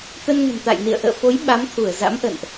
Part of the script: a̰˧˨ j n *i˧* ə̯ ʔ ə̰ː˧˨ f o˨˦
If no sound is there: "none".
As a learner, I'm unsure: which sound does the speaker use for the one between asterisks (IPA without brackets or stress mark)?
ḭ˧˨